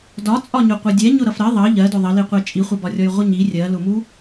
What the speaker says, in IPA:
d ɒ t͡sʼ ɒ ɲ ʊ qʷ ʌ dʲ ɛ ɲ ʊ ɾ ʌ f ɾ ɜ ðˤ ʌ ʎ ɜ d ʊ ðˤ ə l i qʷ ɛ t͡ʃʼ i χʷ ʌ b ɒ rʲ ɔ j ʁʷ ə ɲ i rʲ ɜ l ʊ m u

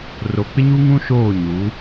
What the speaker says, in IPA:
r o˨ k͡p ɪ˦ ɲ u˦ ŋ ũ˦ ʃ oː˦˨ ɲ u˨˦

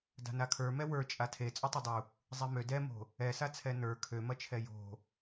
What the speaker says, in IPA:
d a̤ n a kʰ ə˞ m ɛ w ə˞ t͡ʃʼ a tʰ e t͡sʼ ø tˤ e dˤ u | zˤ e m ø d ɛ m o̤ | ɛ s a t͡sʰ ɛ n ə˞ kʰ ø m ɐ t͡ʃʰ ɛ j o̤

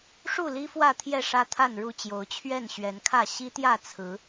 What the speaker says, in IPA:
ʂ u˥˨ l i˦ f w ä˥˨ t̪ʰ j ɛ˥˨ ʂ ä˦ t̪ʰ a˥˨ n ɻ u˥˨ t͡ɕ j o˨˦ ʊ̯ t͡ɕʰ ɥ ɛ˥˨ n ɕ ɥ ɛ˨˦ n kʰ ä˥˨ ɕ i˦ t̪ j ä˥˨ t͡sʰ ɹ̩˨˦

